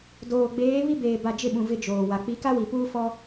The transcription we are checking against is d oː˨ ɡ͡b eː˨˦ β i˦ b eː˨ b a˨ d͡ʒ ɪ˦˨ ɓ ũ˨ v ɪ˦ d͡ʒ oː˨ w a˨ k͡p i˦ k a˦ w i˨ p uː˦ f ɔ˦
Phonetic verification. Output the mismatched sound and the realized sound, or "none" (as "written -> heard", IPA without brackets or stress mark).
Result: none